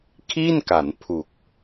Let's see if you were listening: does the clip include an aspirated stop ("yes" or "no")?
yes